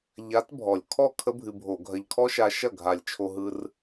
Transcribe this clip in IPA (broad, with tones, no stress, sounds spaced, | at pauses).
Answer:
ʎ a˧˥ t bʱ ɔ˨˩ lʲ kʰ ɔ˥˩ kʰ ə˥ bʱ ɨ˧ bʱ o˧˩˧ ɡʱ ɐ˧ ʎ kʰ ɔ˥ ʃ a˧ ʃ ɐ˥˩ ɡʱ a˨˩ lʲ t͡ʃʰ o˧ ɦ ɯ˧ r